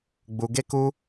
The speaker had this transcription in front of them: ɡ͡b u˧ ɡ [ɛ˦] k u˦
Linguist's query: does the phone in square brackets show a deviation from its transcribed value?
yes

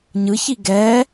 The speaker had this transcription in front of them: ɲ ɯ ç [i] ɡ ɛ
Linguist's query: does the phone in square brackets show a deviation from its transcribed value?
no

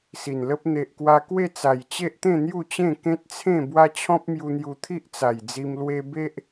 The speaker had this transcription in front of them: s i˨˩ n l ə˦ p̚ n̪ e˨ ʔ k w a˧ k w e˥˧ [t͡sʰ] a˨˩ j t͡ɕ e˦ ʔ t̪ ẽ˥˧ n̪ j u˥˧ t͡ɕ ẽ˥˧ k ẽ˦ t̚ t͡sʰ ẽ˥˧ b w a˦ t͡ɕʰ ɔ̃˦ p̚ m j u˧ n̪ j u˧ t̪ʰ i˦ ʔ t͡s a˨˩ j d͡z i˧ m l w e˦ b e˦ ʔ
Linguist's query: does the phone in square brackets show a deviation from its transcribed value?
yes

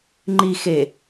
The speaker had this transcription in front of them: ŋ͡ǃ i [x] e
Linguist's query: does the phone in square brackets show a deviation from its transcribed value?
no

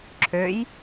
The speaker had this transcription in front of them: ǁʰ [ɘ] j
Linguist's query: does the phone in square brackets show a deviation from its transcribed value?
yes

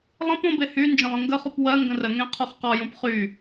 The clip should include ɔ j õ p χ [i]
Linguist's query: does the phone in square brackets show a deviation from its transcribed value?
yes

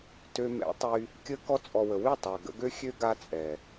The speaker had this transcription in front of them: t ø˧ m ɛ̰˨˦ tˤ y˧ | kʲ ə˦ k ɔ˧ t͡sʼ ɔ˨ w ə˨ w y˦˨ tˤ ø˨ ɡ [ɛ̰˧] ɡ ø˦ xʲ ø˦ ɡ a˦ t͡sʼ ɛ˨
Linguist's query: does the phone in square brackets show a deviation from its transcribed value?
yes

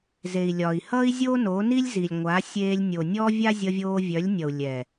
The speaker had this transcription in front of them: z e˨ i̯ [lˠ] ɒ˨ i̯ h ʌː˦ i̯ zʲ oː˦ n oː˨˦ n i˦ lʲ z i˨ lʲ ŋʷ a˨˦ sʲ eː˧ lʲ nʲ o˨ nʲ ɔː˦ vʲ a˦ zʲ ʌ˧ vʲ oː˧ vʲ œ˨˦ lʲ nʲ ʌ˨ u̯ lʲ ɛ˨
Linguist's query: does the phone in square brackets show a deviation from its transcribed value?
yes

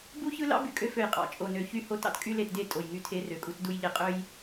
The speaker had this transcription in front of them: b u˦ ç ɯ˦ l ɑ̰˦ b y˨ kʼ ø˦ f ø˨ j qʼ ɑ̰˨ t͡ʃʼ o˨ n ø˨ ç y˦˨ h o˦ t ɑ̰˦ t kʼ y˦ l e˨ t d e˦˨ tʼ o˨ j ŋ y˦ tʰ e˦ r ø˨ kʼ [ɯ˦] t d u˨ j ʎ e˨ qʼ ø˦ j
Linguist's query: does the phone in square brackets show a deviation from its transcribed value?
yes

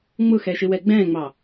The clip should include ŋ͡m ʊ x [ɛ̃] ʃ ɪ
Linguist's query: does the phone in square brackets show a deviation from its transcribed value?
yes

